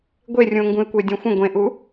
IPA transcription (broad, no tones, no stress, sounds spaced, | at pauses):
ɡʷ e rʲ ũ o̯ ŋ ɡ ũ e̯ kʷ ə e̯ dʲ ẽ xʷ ə̃ ɡʷ ẽ ʔ u